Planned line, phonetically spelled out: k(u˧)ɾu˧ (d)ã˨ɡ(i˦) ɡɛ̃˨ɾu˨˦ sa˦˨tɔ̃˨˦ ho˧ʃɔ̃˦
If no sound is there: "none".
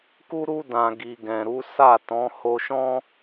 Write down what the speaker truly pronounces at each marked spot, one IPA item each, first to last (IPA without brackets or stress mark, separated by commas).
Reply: u˧, d, i˨